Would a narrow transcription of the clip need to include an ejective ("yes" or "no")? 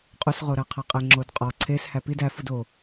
yes